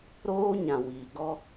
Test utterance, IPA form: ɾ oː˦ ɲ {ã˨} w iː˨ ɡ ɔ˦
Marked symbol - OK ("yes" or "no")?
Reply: yes